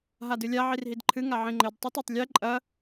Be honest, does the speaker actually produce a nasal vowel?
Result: yes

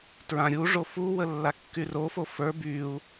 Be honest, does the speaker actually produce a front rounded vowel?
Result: yes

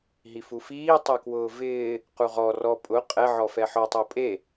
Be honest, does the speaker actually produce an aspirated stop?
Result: no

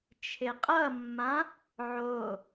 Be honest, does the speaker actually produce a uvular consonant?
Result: yes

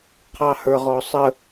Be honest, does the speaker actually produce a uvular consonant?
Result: yes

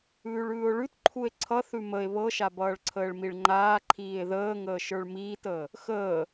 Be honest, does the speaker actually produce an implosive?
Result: no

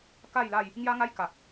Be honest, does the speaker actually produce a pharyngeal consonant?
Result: no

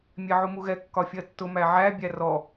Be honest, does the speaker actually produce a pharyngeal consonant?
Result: yes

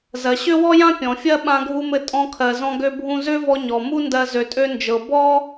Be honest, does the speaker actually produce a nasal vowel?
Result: yes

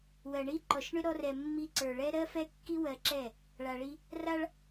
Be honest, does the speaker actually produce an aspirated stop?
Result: no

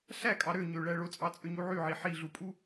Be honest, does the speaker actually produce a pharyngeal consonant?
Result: yes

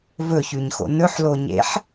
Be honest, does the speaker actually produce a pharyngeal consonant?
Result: yes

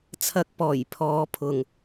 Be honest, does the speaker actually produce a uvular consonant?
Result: no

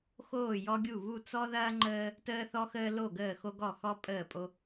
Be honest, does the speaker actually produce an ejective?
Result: yes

